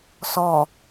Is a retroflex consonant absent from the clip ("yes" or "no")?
yes